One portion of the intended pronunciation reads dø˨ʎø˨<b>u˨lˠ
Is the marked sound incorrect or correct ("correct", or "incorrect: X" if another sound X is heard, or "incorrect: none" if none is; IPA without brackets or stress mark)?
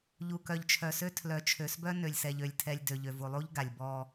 incorrect: v